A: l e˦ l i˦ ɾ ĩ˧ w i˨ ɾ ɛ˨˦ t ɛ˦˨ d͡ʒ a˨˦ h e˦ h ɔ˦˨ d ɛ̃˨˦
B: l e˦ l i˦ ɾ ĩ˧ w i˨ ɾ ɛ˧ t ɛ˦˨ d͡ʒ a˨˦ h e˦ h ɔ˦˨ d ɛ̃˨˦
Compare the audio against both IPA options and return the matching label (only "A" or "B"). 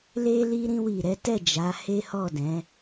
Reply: A